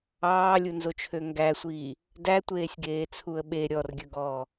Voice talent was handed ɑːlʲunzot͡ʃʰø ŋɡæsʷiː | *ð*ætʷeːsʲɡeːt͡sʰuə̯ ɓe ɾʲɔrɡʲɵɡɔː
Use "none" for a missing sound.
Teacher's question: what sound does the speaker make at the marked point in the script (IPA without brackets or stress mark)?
d